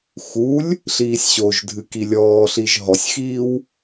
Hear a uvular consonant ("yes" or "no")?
no